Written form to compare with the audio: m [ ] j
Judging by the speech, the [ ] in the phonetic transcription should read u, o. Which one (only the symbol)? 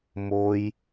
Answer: o